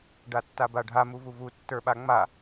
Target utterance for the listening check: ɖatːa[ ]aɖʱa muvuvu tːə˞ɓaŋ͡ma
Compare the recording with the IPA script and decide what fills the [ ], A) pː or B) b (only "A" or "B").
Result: B